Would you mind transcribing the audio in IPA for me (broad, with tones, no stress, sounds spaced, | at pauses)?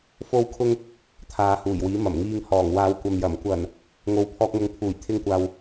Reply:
f o˥ w kʰ ʊ˥ ŋ | t̪ʰ aː˨˧ h uː˨˩ j w iː˨˥ m ɐ˨˩ m ŋ iː˧ ŋ h ɔː˨˩ ŋ w aː˨˧ w kʷ ɐ˨ m j ɐ˨˩ m kʷ ɐ˨˩ n | ŋ o˨˥ w pʰ ɔː˧ k̚ m ʊ˨˥ ŋ pʰ uː˨˩ j t̪ʰ ɪ˧ ŋ kʷ aː˨ w